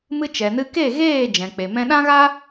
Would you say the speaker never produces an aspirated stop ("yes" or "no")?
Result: yes